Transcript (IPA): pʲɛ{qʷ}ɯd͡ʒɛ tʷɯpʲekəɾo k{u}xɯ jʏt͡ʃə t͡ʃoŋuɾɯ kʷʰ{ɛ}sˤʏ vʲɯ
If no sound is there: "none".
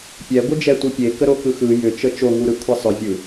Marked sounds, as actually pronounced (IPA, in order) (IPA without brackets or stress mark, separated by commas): ɡʷ, ɯ, ɛ